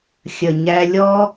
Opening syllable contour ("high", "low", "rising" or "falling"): low